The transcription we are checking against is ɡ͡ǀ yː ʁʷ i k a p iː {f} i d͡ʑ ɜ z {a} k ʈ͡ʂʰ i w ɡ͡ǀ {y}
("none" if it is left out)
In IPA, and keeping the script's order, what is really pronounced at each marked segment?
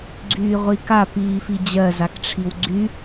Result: f, a, y

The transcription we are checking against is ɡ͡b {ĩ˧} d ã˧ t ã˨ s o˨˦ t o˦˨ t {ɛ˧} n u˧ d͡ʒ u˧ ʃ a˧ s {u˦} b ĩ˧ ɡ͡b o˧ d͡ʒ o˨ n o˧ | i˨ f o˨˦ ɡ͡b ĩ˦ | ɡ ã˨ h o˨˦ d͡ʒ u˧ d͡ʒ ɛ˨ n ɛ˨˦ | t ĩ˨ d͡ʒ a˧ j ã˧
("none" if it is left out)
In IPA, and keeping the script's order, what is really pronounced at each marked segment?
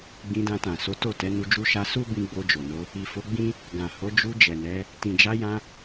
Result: ĩ˧, ɛ˨˦, u˦

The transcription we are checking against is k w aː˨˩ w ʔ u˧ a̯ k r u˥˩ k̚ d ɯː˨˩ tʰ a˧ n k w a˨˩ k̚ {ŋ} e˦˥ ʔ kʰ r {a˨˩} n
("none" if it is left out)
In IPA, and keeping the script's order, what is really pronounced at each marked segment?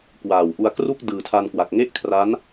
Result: ŋ, a˦˥

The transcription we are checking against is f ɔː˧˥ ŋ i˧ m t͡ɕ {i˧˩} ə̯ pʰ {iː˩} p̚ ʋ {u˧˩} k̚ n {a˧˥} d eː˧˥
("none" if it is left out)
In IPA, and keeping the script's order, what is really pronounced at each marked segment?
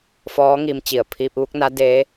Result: i˧˩, iː˧, u˧˥, a˧˥

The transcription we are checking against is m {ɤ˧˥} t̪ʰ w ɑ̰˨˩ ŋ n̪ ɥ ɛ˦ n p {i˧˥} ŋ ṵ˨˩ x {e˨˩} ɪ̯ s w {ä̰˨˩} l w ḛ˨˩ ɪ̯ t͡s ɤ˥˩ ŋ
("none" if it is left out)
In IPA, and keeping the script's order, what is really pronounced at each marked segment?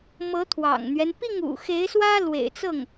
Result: ɤ˧˥, i˥˩, e˧˥, ä˥

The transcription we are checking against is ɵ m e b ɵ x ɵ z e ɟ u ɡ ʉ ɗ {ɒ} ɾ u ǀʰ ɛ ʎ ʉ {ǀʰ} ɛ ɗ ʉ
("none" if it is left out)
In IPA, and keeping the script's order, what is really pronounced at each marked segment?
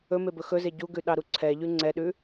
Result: ɑ, ŋ͡ǀ

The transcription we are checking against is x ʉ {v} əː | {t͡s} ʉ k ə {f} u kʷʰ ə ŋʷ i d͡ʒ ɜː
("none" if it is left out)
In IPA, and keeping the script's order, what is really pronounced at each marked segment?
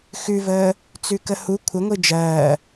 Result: v, t͡s, h

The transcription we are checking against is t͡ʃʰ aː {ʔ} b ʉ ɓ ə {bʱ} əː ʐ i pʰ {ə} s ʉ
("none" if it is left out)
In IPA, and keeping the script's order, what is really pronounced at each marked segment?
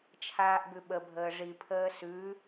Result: ʔ, bʱ, əː

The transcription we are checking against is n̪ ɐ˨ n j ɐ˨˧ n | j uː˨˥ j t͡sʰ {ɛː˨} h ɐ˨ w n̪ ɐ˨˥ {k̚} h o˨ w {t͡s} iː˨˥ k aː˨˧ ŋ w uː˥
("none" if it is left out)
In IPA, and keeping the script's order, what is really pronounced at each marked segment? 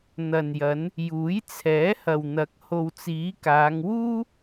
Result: ɛː˨˥, k̚, t͡s

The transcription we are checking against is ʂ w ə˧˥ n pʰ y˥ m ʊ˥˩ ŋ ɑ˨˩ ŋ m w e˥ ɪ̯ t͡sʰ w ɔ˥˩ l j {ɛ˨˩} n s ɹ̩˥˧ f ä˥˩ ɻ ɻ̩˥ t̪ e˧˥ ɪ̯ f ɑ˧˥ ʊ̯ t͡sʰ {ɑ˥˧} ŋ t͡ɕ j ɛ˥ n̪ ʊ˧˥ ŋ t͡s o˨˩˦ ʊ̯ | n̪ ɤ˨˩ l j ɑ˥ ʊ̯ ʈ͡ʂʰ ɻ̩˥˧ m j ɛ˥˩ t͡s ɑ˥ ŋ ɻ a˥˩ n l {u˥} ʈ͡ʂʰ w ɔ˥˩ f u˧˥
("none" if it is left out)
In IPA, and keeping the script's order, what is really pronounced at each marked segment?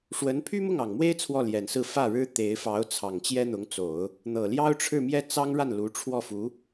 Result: ɛ˨˩, ɑ˨˩, u˧˥

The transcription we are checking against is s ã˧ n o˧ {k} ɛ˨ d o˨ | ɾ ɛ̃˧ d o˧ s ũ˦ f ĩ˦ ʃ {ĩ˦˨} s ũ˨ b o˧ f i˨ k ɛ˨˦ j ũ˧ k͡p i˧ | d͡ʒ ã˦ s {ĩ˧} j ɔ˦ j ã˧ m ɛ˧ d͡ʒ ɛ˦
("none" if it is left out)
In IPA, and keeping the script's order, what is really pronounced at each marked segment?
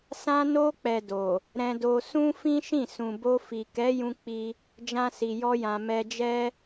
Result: k͡p, ĩ˦˨, i˧

